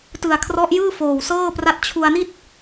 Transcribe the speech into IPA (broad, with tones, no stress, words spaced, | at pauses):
tɯ˨˩a̯kʰrɔ˦˥ʔjɯː˥˩ foː˨˩wsɤː˥˩pra˥˩t̚ t͡ɕʰu˧a̯ni˥˩t̚